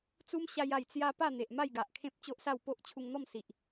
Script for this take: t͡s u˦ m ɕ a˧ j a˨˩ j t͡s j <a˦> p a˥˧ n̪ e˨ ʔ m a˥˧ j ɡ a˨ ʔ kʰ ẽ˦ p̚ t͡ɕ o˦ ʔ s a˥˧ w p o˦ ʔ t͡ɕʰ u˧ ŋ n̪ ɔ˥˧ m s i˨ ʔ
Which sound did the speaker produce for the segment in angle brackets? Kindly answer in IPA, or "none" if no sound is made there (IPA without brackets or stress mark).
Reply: a˧